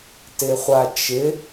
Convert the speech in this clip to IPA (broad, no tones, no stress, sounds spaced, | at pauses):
t ɪ χʷ a t͡ʃ ɪ